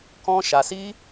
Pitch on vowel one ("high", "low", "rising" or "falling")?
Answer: high